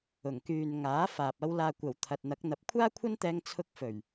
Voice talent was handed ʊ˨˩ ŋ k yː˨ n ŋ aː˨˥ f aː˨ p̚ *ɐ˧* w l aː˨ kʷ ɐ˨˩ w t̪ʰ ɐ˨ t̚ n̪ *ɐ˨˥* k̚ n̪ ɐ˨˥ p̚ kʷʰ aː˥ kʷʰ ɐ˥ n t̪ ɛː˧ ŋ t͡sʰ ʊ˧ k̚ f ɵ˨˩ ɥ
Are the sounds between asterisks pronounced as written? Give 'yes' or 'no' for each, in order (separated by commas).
yes, yes